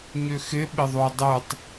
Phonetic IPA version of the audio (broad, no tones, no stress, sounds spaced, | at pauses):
ɲ ʏ x ɪ ɓ ɪ ðˤ o dˤ ɯ tˤ